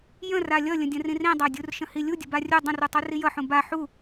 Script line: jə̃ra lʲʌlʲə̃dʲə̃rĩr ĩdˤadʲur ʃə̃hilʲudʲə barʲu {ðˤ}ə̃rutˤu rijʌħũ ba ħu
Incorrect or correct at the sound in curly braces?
incorrect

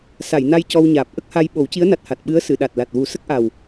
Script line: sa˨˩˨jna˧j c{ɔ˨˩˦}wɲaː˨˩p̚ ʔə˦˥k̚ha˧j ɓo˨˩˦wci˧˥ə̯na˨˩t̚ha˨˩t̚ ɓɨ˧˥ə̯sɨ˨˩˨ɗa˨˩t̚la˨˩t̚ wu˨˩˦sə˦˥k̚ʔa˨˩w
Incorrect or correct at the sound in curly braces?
incorrect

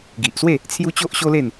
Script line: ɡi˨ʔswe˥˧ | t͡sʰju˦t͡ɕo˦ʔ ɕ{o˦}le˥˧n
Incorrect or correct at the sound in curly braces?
correct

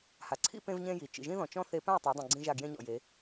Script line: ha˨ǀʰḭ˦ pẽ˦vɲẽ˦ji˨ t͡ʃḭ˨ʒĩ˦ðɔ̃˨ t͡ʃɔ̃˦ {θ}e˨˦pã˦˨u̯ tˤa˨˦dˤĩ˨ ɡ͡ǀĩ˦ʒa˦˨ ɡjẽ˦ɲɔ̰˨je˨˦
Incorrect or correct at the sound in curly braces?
correct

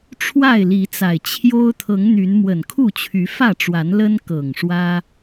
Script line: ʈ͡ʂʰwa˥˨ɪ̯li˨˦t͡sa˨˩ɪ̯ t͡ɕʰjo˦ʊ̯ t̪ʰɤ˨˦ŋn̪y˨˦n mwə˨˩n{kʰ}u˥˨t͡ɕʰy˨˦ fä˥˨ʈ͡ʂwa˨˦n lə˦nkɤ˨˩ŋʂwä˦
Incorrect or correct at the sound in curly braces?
correct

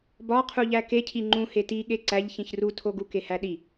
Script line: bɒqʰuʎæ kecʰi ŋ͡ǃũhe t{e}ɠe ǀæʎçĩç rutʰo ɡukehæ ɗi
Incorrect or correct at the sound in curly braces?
incorrect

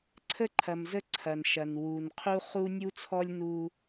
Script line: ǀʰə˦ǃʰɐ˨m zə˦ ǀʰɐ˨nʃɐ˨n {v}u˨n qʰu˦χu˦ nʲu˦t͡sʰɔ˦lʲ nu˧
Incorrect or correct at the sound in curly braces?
incorrect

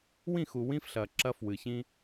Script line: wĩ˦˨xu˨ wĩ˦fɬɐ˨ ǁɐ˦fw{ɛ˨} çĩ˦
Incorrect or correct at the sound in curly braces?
incorrect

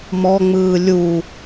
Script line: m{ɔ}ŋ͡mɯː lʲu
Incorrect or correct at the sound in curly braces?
correct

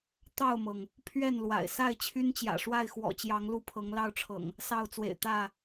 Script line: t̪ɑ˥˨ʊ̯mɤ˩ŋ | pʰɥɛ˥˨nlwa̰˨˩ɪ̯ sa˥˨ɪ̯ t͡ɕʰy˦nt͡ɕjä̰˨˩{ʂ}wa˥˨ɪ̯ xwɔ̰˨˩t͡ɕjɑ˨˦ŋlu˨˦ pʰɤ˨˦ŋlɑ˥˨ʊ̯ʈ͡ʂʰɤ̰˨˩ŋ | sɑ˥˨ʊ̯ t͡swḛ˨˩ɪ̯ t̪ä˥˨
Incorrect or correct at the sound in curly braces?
correct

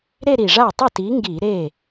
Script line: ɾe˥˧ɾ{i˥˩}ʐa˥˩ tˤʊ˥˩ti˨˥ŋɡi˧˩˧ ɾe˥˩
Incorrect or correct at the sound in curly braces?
incorrect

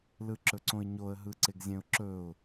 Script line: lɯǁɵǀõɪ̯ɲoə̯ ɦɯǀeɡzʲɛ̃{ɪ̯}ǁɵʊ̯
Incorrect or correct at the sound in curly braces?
incorrect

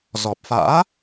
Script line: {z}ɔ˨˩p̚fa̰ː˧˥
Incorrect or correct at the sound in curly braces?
correct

